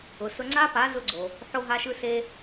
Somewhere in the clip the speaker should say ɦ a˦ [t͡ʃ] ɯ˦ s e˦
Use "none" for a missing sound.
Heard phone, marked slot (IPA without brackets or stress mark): ʃ